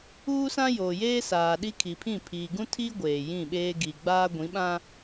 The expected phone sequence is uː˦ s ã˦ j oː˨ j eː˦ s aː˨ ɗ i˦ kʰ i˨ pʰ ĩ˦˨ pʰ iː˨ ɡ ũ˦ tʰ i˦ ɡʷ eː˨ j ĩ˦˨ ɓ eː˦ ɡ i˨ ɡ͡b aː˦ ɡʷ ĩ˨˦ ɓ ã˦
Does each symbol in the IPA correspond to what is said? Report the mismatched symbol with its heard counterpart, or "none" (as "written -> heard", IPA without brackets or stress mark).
none